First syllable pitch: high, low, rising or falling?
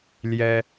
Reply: high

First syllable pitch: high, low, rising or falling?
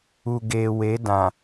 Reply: low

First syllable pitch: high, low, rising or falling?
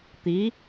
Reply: rising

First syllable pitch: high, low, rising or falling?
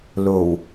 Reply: low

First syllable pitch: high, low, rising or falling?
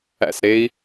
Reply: falling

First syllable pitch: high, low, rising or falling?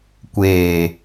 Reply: low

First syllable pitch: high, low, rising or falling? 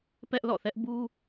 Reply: high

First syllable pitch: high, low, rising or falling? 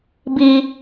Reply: high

